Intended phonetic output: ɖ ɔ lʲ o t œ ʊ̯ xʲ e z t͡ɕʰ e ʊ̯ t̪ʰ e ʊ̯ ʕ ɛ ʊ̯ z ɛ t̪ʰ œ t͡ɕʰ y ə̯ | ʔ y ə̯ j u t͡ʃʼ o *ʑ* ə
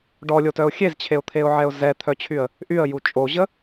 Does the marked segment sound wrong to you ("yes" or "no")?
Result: no